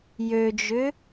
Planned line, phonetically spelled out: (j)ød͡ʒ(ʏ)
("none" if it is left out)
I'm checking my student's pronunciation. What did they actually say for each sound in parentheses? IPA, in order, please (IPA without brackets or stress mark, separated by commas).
j, ʏ